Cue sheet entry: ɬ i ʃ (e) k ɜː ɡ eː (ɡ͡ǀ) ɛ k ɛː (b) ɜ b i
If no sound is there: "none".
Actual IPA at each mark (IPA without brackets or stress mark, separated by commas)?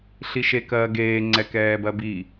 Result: e, ŋ͡ǀ, b